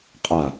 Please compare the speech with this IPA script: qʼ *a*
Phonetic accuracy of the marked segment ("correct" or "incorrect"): correct